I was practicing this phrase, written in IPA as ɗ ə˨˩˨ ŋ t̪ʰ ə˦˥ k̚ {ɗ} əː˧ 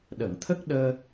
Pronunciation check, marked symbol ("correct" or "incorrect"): correct